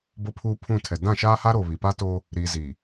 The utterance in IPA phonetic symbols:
bo˦pʰuː˦pʰũ˦˨tʰɛ˨ dã˦˨ʃaː˦ha˦ɾo˨ βi˨ pa˦to˦ | ɾiː˨ziː˨

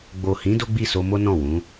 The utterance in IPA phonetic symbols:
ɡ͡bo˨hĩ˨˦ do˦ɡ͡bi˦˨so˧mo˦ nɔ̃˦˨wũ˨˦

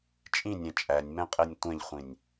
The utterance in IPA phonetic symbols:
t͡ʃʼĩnʲɛ̃ t͡ʃʼænʲmɛ̃qʼɛnʲ tʷɛ̃ʎχʷĩnʲ

